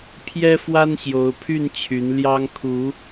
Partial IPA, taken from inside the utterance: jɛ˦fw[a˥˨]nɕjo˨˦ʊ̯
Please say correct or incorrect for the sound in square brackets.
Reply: incorrect